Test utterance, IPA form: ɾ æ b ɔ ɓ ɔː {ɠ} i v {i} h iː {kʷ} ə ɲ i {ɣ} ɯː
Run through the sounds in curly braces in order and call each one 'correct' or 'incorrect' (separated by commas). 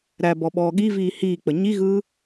correct, incorrect, incorrect, correct